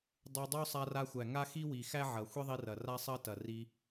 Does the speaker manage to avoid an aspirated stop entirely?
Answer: yes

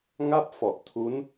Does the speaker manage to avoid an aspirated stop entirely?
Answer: no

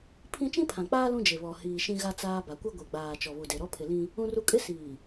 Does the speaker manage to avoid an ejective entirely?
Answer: no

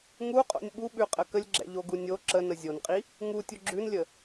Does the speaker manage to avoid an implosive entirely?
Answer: no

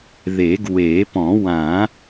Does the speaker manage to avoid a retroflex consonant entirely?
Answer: yes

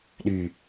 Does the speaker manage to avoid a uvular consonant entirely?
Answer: yes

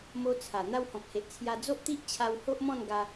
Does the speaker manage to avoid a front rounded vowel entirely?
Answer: yes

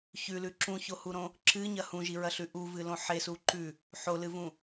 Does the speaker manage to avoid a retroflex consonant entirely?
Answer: yes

